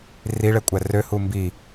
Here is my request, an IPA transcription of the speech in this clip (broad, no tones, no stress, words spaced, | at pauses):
riɭɛkʷʼæ røhu mbi